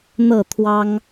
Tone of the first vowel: falling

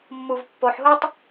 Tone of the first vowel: low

